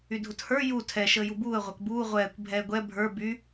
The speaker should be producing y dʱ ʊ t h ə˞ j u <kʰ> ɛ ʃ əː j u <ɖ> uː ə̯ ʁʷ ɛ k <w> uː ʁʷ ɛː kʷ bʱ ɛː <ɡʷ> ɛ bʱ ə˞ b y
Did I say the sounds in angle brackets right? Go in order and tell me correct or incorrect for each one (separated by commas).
incorrect, incorrect, incorrect, correct